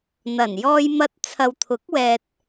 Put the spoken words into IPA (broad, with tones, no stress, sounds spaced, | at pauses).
n̪ ɐ˨˩ n j ɔː˧ j m ɐ˧ t̚ t͡sʰ ɐ˨ w t̪ʰ ʊ˨˥ k̚ w ɛː˧ t̚